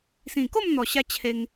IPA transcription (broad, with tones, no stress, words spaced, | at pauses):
sĩ˨˩ko˥˧mn̪ɔ˨˩ɕa˧ t͡ɕʰe˧ŋ